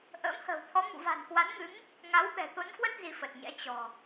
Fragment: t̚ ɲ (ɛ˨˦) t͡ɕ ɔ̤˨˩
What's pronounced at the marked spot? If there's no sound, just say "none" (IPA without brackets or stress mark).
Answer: ɛ̰˧˥